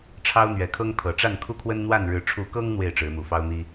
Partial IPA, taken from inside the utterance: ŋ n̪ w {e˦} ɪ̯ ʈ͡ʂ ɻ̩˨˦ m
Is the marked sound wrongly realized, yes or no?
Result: yes